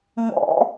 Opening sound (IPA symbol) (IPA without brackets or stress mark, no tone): ŋ